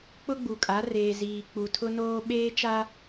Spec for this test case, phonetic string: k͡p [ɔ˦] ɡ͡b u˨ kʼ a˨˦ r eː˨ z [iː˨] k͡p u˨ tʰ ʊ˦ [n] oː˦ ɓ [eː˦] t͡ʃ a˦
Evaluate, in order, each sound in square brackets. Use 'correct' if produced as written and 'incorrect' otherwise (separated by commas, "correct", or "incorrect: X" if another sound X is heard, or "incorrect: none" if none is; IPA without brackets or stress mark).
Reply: incorrect: ʊ˦, correct, correct, correct